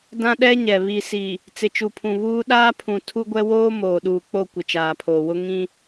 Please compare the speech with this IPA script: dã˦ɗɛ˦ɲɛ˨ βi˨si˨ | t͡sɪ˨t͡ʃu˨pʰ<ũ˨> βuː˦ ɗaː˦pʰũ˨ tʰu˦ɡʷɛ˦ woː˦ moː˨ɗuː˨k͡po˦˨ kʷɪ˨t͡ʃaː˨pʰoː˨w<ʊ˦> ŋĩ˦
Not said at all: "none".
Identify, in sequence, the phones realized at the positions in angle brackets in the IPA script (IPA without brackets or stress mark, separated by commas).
ũ˨, ʊ˦